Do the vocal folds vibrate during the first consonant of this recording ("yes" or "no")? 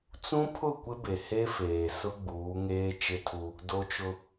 no